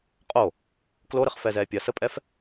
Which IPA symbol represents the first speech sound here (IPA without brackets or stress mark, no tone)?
qʼ